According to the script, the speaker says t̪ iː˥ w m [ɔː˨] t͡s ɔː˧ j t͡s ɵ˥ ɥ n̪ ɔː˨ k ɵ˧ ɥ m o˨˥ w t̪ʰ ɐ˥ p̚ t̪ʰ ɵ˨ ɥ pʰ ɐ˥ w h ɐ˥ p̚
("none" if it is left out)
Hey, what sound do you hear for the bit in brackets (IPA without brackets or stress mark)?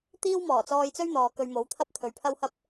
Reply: ɔː˨˩